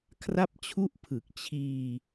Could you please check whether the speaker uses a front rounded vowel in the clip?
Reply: no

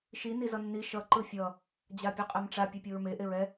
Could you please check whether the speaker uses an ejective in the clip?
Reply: yes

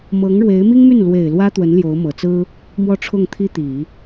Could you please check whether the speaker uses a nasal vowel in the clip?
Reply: no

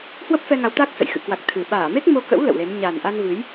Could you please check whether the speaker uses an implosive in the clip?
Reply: yes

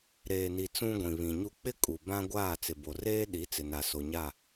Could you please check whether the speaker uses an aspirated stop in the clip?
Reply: no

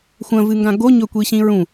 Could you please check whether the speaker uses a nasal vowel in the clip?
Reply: yes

